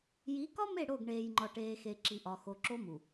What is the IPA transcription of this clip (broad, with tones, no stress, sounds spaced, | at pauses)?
j i˨˦ k ɒ˦ m e˦˨ ɽ o˦˨ ɡ ɳ eː˨ j ŋ͡ǃ ɒ˨ ʈ eː˨ x e˨ ǁ i˨ ʔ ɒ˨ x o˨ ǁ o˦ m u˨